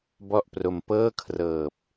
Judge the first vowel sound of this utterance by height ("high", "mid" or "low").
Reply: mid